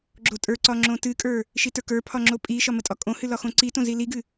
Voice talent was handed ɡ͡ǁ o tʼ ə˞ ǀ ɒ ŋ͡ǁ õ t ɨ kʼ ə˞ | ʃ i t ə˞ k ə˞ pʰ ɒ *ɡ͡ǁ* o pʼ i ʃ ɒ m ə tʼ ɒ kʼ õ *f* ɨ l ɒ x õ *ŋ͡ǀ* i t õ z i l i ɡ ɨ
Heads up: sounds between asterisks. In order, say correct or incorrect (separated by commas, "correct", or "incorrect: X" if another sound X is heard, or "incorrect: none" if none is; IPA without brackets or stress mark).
incorrect: ŋ͡ǁ, incorrect: h, incorrect: ǀ